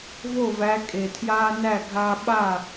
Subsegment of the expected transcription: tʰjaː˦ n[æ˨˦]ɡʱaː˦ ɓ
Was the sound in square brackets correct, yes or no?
no